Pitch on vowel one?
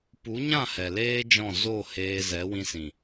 rising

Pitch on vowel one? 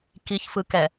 low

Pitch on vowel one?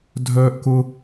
high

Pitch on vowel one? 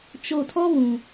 low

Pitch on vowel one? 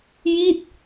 falling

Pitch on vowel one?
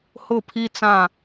falling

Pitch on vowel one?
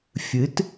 rising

